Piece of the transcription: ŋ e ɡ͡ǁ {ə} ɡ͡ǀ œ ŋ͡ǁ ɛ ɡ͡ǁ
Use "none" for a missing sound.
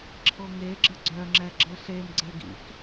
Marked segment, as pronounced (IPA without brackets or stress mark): ə